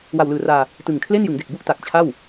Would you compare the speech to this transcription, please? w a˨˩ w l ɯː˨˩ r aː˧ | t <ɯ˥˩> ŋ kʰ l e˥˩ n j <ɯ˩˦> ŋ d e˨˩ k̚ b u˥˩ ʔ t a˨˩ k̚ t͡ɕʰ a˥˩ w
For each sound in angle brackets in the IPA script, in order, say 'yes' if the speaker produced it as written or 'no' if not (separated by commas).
no, yes